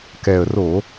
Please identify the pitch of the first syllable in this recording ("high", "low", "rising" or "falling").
low